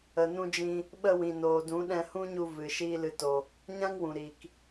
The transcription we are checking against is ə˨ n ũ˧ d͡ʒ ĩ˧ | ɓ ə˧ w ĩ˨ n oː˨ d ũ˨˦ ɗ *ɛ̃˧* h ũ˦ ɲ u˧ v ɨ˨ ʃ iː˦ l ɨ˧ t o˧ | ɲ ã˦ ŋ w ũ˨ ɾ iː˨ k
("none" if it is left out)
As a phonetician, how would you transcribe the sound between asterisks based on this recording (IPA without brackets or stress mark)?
ɛ̃˧